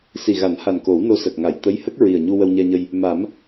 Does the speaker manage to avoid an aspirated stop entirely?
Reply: yes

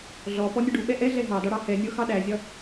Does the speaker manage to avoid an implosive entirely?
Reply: no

